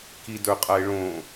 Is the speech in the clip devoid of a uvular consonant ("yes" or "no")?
no